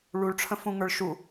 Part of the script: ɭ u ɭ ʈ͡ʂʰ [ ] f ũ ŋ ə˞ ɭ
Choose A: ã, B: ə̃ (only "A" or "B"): B